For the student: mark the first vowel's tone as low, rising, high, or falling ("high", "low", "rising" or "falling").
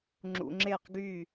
low